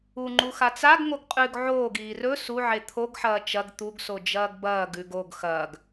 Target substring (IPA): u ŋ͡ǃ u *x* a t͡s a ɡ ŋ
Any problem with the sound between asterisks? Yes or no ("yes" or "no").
no